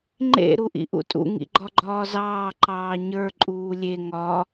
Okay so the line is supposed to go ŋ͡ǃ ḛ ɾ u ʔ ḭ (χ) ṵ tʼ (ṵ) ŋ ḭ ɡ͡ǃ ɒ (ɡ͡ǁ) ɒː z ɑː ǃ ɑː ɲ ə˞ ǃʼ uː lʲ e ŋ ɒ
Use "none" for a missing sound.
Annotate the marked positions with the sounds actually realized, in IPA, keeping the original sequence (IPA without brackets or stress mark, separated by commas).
ʔ, ṵ, ɡ͡ǃ